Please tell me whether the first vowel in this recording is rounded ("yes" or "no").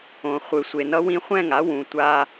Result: yes